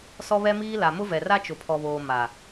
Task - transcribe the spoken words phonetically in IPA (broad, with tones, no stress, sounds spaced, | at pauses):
s ɔ˦ β ɛ˦ m iː˦ l a˨ m ʊ˦ v ɛ˨ r a˦ t͡ʃ ʊ˨ pʰ ɔ˨ β oː˨ m a˨